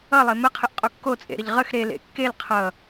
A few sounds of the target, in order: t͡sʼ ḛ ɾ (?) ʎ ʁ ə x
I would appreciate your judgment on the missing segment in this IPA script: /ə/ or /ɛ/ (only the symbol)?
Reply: ə